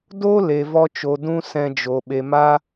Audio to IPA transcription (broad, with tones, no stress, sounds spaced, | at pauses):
d o˦ l e˨ v ɔ˧ t͡ʃ o˨ d ũ˧ s ɛ̃˧ d͡ʒ o˨ ɓ e˨ m a˦